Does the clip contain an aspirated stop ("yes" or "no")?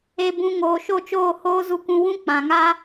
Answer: no